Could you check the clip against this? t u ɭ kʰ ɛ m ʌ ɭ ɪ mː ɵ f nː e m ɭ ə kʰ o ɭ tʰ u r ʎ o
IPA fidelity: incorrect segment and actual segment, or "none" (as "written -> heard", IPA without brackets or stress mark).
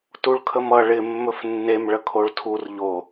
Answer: ɛ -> ə